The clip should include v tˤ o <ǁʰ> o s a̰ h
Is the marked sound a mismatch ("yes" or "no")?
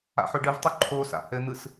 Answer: yes